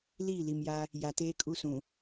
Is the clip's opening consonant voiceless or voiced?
voiced